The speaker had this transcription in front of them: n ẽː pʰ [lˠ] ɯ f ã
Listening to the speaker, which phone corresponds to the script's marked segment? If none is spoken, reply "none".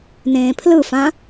l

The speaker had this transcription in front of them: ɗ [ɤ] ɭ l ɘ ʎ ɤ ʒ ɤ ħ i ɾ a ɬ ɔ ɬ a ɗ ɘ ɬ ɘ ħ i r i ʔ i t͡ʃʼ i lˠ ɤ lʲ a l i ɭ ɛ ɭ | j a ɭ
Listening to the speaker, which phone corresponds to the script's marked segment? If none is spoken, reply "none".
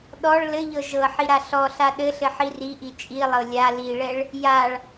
ɔ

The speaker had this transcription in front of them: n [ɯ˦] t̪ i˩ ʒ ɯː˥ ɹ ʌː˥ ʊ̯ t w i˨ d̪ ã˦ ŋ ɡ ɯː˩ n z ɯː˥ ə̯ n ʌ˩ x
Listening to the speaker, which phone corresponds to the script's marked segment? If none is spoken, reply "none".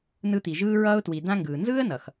ɯ˦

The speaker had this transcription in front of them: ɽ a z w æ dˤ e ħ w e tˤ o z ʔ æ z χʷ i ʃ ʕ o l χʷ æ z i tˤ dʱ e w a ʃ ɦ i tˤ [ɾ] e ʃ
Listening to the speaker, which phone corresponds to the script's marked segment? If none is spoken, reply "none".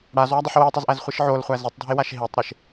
ɾ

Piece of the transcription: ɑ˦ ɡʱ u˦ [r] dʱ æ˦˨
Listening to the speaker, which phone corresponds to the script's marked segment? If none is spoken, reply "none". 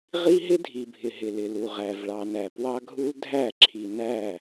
l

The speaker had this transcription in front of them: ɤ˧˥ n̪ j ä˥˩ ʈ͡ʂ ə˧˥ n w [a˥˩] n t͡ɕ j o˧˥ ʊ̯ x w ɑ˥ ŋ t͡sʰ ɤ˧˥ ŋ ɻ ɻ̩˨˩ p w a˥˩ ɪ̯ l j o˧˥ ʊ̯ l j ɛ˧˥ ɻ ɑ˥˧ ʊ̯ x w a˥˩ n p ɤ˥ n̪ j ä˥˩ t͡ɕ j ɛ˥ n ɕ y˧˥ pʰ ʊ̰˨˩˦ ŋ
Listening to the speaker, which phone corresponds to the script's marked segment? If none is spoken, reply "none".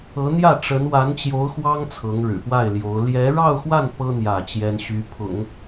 a˧˥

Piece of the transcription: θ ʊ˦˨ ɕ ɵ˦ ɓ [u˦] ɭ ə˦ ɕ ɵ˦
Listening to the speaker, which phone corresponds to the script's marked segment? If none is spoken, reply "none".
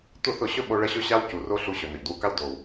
o˦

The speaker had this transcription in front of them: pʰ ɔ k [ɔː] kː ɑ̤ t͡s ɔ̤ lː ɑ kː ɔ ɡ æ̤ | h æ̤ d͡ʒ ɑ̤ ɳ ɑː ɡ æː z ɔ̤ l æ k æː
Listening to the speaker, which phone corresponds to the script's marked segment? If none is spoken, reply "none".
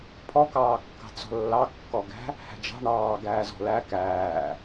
ɑː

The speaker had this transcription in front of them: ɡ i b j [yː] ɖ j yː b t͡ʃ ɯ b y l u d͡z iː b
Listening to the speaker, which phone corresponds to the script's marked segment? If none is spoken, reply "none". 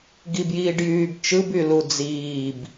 iː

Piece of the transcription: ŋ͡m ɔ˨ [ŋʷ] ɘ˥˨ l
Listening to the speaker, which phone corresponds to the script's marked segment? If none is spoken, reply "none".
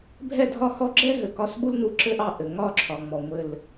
ŋʷ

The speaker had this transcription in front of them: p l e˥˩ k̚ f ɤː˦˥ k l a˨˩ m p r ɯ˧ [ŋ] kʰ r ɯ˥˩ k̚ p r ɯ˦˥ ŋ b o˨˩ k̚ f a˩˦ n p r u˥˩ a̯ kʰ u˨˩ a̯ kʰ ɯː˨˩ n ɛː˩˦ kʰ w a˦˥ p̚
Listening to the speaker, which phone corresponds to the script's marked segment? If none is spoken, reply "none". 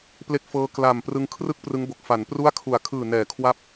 ŋ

